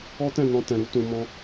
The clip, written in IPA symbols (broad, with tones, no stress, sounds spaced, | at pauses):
ɔ˦ t ɛ̃˦˨ n ɔ̃˧ t ɛ̃˨ ɾ u˨˦ t ũ˧ m ɔ̃˦